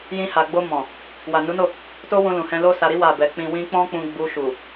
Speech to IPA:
j ĩ˧ h a˨ ɡ͡b o˧ m ɔ̃˨ | w a˨ n u˨˦ n o˦˨ | t o˦ w ũ˧ l ũ˨ h ɛ̃˧ l o˦ s a˧ ɾ i˦ w a˦˨ b ɛ˧ k͡p ĩ˦ w ĩ˦ k͡p ɔ̃˦ k͡p ũ˧ ɡ͡b u˧ ʃ u˨

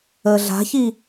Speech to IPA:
əː ɮ a̤ ç i

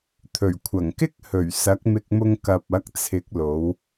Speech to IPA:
t̪ʰ ɵ˨˩ ɥ kʷʰ ɐ˨˩ ŋ k ɪ˥ k̚ h ɵ˨˩ ɥ s ɐ˨˥ k̚ m ɪ˧ k̚ m ʊ˧ ŋ k ɐ˨ p̚ ɐ˨˥ k̚ t͡sʰ ɪ˨˥ k̚ l o˨˧ w

